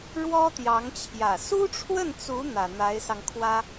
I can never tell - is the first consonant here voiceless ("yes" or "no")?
no